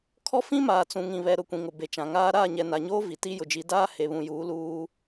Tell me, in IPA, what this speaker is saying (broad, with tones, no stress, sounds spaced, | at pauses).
kʰ ɔ˦ f ĩ˦ m aː˨ t͡s ũ˨ ŋ ĩ˨ β ɛ˨ ɾ ʊ˦˨ kʷ ĩ˨ ŋ ʊ˨ b e˨ t͡ʃ ã˨ ŋ aː˦ ɾ aː˦˨ ɲ ɛ˨ n a˨ ɲ oː˦ v i˨ t i˦ j ʊ˨ d͡ʒ i˨˦ d aː˦ h e˨ β ũ˨ j uː˨˦ l uː˦